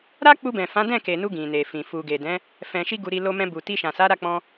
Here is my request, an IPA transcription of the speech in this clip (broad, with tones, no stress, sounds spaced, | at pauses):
ɾ a˦ k͡p u˧ b ɛ̃˨ f ã˨˦ d ɛ̃˦˨ k e˨ n u˧ ɡ ĩ˨ n e˨ f ĩ˨ f u˨ ɡ e˨ d ɛ̃˨˦ | f ɛ̃˧ ʃ i˦ ɡ u˧ ɾ i˧ l o˧ m ɛ̃˧ b u˨ t i˧ ʃ ã˨ s a˨˦ ɾ a˦˨ k͡p ɔ̃˧